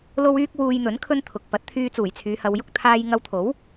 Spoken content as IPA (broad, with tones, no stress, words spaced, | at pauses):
lo˥wyː˥k̚ wuː˧jn̪ɵ˨˥n kʰɵ˥nt̪ʰʊ˨k̚ pɐ˨˥t̚t̪ʰyː˧ t͡suː˨˩jt͡sʰyː˨˧hɐ˨˧w jʊ˥k̚t̪ʰaː˥j ŋɐ˧wt̪ʰo˨˥w